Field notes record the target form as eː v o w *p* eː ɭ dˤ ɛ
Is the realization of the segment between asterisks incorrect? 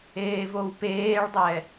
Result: no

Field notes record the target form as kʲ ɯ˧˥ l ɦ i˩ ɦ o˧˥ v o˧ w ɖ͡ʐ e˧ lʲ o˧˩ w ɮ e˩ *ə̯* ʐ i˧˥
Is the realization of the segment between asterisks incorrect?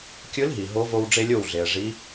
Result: no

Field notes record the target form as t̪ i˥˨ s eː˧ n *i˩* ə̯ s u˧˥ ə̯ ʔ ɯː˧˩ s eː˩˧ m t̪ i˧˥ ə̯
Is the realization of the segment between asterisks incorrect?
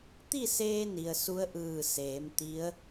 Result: no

